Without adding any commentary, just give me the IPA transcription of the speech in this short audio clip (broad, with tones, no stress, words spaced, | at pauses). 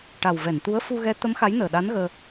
ʈa˨˩w vɛ˨˩˨nt̪u˧˥ə̯ fu˧ɣɛ˧˥t̪ə˧˥m xa˧˥jnəː˨˩ ɗa˧˥nɣəː˧